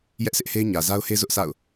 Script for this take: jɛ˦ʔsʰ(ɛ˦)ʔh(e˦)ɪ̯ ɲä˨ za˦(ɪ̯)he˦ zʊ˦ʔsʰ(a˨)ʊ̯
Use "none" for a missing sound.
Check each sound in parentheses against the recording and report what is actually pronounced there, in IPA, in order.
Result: ɪ˦, e˦, ʊ̯, a̰˦˨

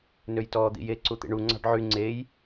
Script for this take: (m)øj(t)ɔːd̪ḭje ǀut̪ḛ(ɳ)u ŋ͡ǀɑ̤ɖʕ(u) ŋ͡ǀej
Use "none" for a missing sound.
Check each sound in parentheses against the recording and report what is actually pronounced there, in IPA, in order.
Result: n, t, ɳ, y

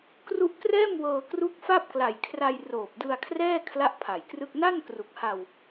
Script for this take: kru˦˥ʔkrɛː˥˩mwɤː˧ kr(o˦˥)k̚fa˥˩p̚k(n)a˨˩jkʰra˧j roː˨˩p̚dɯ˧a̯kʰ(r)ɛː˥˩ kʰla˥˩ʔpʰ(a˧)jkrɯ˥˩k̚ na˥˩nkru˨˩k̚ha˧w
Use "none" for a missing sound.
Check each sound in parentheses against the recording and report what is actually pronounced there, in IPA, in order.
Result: u˦˥, l, r, a˨˩

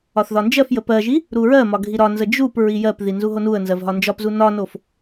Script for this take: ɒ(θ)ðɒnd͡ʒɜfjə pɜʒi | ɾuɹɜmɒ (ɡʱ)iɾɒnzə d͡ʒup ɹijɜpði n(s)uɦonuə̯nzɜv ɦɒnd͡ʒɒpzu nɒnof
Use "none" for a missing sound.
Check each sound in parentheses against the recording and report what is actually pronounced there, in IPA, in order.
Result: θ, ɡʱ, z

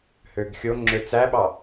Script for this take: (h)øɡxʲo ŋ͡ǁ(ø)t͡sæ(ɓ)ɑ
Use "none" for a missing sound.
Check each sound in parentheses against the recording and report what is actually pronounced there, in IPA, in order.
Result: h, ø, ɓ

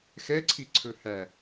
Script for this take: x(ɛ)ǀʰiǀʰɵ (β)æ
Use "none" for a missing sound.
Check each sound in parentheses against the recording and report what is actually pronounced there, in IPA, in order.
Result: ɛ, h

